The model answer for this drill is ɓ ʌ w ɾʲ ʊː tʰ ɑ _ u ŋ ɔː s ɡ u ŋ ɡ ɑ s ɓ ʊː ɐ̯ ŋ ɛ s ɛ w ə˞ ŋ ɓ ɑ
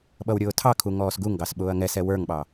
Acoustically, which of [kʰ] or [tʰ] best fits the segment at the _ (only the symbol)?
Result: kʰ